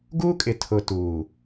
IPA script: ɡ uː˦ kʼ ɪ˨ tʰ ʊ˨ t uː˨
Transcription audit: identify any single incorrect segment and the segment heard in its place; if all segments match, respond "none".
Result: none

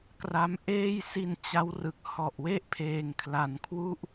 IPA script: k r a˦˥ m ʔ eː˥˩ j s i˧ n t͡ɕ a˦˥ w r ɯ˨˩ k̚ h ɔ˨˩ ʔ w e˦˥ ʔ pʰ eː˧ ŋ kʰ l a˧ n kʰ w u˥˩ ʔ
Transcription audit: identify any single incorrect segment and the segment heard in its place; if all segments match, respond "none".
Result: none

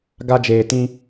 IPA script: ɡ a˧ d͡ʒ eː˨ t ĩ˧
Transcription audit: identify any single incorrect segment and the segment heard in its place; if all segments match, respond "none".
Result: none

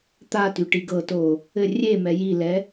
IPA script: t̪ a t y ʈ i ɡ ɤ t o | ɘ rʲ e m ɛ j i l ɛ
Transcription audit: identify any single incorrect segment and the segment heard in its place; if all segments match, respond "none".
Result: none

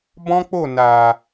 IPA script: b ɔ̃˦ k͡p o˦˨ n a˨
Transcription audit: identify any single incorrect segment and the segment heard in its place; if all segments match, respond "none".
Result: none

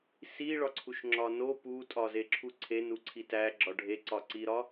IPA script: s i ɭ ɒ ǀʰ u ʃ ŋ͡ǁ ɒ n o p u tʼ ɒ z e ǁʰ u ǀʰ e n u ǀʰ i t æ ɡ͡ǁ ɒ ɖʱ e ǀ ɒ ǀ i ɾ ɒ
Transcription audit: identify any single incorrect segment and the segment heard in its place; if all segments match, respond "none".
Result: none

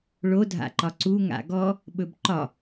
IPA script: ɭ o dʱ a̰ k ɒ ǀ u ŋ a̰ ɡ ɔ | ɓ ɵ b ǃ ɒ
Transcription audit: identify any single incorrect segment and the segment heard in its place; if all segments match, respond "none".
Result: k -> ǃ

